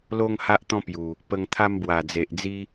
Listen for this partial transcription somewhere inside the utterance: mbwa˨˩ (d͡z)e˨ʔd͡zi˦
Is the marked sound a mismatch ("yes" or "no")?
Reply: no